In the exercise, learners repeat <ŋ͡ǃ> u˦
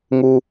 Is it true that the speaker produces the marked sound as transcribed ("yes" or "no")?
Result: no